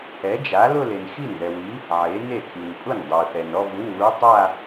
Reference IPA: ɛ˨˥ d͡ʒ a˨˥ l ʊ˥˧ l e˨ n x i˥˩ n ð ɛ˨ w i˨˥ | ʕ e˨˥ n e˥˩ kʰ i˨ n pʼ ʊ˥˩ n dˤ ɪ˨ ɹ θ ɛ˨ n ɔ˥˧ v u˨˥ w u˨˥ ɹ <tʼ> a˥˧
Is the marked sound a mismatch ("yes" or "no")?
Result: yes